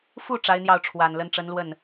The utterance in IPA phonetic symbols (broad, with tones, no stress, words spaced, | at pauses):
fu˥˩ ʈ͡ʂa˧˥ɪ̯n̪jɑ˥˩ʊ̯ ʈ͡ʂʰwa˨˩nlə˧˥n ʈ͡ʂə˧˥nlwə˥˩n